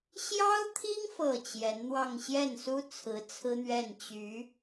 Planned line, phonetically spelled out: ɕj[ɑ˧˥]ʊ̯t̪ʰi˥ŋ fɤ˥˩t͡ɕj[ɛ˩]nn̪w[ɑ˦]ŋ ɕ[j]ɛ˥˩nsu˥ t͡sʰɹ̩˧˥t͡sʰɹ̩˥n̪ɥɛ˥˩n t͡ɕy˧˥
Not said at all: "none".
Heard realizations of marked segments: ɑ˥, ɛ˧˥, ɑ˥˧, j

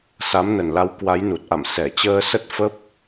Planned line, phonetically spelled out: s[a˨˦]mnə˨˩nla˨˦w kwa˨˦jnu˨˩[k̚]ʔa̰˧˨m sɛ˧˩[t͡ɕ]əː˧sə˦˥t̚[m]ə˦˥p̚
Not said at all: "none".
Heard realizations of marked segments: a˨˦, t̚, t͡ɕ, f

